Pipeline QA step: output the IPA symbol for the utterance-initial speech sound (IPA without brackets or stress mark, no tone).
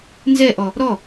n